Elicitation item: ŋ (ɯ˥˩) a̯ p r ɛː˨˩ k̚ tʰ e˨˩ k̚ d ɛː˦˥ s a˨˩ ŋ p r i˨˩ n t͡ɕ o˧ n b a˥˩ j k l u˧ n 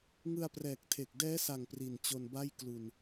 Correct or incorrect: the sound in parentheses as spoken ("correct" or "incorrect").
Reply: incorrect